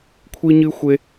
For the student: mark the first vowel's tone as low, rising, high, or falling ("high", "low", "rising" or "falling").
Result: high